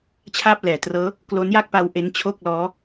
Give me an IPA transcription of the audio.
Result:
t͡ɕʰ aː˥˩ p̚ l ɛː˩˦ t r ɤː˦˥ | k l o˦˥ n j a˥˩ k̚ p a˧ w ʔ e˦˥ n t͡ɕʰ o˥˩ k̚ l ɔː˦˥

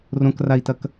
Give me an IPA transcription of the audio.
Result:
r õ k r a i̯ t ɐ k

